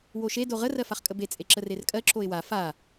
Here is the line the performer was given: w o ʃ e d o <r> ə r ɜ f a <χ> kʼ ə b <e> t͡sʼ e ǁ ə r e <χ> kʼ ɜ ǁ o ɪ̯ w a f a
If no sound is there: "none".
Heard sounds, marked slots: ʁ, χ, e, r

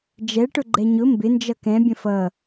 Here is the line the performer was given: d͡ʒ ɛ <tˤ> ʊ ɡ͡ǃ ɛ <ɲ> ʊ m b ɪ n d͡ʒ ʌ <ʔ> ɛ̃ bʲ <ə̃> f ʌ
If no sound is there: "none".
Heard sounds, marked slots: ʈ, ɲ, k, ə̃

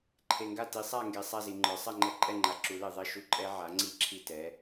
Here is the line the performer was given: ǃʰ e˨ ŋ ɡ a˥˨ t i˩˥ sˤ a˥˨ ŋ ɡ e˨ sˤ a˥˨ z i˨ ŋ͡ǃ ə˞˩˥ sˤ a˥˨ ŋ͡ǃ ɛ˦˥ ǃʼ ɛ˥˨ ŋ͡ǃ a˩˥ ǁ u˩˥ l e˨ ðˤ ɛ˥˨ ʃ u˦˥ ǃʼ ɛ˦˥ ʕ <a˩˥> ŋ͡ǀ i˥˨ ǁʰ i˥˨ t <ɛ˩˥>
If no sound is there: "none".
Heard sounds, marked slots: a˩˥, ɛ˩˥

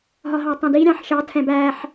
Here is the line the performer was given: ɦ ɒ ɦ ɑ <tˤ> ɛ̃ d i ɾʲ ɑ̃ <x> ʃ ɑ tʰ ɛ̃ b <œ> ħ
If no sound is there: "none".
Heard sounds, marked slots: tˤ, ħ, æ

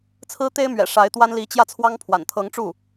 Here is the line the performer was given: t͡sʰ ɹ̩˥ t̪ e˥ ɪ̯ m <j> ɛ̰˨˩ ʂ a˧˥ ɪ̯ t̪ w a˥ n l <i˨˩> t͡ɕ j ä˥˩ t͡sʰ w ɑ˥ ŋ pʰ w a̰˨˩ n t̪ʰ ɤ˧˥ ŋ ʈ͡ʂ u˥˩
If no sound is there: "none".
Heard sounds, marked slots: ɥ, i˧˥

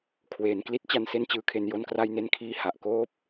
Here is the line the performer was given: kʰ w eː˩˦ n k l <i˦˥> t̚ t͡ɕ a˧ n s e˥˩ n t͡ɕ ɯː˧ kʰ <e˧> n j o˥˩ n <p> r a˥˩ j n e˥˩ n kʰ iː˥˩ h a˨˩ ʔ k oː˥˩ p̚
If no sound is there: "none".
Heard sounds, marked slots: i˦˥, e˧, k

